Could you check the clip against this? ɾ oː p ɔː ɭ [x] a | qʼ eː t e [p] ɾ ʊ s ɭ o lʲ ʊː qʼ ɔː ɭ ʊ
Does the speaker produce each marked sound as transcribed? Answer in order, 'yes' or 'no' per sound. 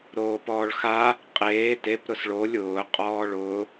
yes, yes

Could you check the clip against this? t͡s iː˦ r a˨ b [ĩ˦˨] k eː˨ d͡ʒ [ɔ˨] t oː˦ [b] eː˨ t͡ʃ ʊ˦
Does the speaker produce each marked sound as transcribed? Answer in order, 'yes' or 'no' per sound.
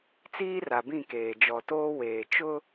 yes, yes, no

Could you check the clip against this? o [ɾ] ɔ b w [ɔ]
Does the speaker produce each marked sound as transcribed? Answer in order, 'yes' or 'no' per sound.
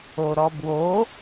yes, no

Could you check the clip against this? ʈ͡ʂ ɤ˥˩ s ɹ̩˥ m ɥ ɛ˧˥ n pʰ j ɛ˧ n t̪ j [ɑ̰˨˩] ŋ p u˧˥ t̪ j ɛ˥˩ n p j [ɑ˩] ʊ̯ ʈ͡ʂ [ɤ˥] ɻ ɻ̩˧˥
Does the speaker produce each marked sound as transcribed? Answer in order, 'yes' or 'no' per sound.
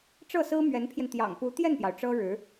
yes, yes, yes

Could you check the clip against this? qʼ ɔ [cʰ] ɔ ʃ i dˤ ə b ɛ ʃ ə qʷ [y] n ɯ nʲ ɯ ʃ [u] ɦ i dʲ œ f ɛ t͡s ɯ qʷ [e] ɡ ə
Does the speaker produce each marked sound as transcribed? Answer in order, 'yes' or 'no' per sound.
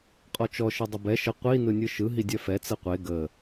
no, no, no, yes

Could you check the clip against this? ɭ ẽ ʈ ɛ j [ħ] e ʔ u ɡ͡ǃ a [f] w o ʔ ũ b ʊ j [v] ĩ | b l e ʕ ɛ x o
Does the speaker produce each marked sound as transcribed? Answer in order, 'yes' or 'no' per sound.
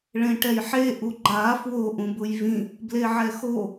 yes, yes, yes

